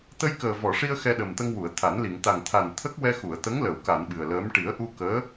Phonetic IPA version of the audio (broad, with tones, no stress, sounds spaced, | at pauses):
t̪ ə˧ j k əː˨˩ v ɔ˨˩˨ ʂ i˧ ə̯ x ɛ˧ ɗ ə˨˩ m t̪ ə˧ ŋ w u˨˩˨ ə̯ t̪ʰ a˨˩˦ n l i˨˩˨ ŋ t̪ a˨˩ ŋ t̪ʰ a˨˩ n t̪ʰ ə˦˥ k̚ w ɛ˧ x u˨˩˨ ə̯ t̪ ə˧˥ ŋ l ə˨˩˨ w k a˨˩˨ n ɓ ɨ˨˩ ə̯ l əː˧˥ m ʈ i˨˩˦ ə̯ ʔ u˧ k əː˧˥